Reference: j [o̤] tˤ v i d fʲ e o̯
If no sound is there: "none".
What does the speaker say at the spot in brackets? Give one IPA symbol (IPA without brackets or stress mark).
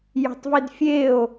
o̤